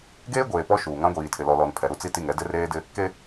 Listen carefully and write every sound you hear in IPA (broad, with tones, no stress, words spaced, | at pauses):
ɡeː˦ ɡʷeː˨pɔ˦ ʃuː˨ ŋã˦ɡʷiː˨tʰɪ˨ lɔ˨lɔ˨n pʰɛ˨ ɾu˦t͡si˦ti˦˨ŋ ɛ˦ dɪ˦reː˦dɪ˦ | ke˦